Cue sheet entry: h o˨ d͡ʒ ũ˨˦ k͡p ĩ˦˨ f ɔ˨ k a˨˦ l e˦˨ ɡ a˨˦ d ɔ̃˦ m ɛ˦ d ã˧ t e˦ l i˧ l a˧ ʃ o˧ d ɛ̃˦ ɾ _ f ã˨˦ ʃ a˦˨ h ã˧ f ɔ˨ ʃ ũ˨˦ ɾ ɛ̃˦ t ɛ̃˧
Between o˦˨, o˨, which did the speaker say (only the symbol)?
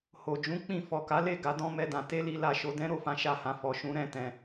o˦˨